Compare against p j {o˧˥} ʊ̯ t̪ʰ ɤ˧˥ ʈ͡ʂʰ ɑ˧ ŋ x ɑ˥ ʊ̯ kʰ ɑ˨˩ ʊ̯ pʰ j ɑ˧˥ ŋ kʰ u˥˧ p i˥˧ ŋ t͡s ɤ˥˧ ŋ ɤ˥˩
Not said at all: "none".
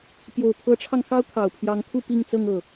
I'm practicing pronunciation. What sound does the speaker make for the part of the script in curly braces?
o˨˩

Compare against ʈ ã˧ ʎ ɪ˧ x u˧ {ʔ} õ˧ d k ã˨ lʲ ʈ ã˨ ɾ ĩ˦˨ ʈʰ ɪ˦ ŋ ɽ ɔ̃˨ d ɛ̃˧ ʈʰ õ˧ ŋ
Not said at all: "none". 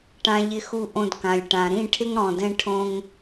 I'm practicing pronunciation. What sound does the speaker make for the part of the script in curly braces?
ʔ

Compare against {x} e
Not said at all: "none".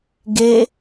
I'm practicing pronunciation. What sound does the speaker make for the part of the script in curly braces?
ɡ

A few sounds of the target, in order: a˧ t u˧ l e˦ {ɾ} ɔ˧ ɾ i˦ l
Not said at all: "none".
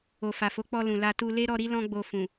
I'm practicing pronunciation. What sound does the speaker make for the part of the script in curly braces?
ɾ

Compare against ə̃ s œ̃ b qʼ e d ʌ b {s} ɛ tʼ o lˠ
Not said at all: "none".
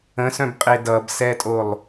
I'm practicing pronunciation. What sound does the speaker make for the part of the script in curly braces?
s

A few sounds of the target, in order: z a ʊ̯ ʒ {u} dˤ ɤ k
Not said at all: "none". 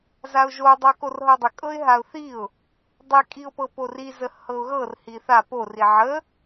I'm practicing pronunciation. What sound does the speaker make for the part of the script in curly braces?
o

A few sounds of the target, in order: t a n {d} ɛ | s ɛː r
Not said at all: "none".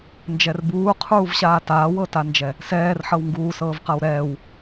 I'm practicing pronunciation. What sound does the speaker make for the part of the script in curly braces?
d͡ʒ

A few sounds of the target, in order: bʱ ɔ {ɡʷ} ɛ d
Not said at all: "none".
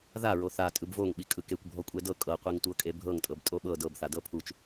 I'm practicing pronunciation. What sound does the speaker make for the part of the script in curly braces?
kʷʼ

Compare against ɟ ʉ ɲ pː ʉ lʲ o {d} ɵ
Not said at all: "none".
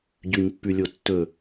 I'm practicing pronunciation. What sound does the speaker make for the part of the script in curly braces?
tː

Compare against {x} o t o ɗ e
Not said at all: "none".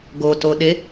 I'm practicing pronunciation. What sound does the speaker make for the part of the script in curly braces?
ɡ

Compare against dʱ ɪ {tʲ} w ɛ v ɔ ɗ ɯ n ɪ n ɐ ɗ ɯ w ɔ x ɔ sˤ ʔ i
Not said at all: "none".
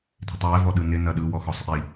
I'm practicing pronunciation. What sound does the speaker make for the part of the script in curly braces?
tˤ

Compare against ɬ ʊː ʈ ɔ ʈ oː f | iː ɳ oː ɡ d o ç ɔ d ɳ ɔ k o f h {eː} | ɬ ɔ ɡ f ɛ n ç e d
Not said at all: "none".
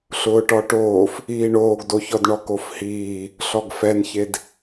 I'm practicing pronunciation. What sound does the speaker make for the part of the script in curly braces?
iː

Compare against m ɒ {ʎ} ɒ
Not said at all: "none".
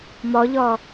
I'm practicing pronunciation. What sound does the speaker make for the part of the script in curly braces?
ʎ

